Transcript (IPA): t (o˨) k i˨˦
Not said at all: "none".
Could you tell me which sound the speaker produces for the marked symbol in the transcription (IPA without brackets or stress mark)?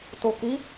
o˨